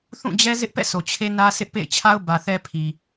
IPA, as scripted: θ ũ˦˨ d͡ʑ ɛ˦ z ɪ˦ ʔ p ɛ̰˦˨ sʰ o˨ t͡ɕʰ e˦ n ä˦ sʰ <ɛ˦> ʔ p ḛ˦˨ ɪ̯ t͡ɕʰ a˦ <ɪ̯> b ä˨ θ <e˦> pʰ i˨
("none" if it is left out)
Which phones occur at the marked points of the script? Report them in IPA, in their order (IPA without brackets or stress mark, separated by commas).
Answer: ɪ˦, ʊ̯, ɛ˦